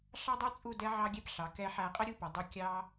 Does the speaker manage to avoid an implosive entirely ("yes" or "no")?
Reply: yes